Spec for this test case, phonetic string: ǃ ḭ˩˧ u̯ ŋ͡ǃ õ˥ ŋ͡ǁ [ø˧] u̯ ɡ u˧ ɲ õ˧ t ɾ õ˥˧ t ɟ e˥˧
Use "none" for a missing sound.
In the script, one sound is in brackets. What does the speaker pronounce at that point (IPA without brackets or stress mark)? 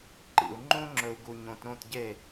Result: ɵ˧